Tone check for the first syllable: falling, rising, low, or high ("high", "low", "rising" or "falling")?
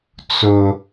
high